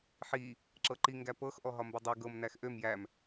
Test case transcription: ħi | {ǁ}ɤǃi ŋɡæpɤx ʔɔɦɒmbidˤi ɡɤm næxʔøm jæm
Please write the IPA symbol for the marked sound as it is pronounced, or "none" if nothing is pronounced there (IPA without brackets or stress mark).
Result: ǁ